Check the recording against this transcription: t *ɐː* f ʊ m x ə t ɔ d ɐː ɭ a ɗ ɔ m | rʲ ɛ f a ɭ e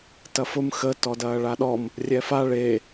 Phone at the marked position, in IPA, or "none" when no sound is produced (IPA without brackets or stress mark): ɐ